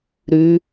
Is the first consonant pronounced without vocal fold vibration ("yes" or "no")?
no